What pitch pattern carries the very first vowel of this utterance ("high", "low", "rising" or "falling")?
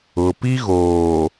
low